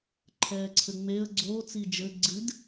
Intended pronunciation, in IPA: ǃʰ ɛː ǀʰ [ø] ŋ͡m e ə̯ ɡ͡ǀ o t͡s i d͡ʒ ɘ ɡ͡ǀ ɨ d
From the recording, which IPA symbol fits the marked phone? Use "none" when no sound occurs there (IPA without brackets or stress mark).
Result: ɘ